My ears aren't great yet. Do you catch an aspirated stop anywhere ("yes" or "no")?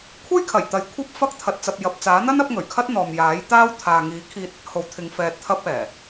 yes